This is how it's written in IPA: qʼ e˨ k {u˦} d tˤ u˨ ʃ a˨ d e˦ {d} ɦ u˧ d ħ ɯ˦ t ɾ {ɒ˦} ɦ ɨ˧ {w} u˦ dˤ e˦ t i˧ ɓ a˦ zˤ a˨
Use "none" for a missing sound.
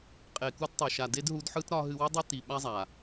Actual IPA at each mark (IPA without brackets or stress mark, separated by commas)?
u˦, d, ɒ˦, w